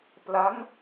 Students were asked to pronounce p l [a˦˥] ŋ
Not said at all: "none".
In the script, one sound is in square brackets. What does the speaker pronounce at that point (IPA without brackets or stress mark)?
a˦˥